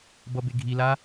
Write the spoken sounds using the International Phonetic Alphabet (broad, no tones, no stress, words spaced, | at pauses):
bʌbeɡʱila